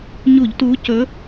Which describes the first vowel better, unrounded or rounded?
rounded